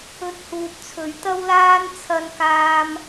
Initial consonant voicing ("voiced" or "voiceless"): voiceless